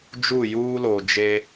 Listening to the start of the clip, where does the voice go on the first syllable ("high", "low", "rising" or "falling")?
falling